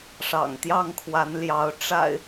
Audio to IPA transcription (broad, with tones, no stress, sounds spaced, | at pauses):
ʂ ɑ̰˨˩ ŋ t̪ j ɑ˥˨ ŋ kʰ w a˨˦ n l j ɑ˨˦ ʊ̯ ʈ͡ʂ a̰˨˩ ɪ̯